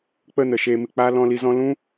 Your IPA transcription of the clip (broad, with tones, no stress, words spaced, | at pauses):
k͡pə˦˨ nə˨ʃeː˧ mɨ˨k͡paː˦ lɔ̃˧li˧zɔ̃˦ lũ˦